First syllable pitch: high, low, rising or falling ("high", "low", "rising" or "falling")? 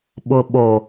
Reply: low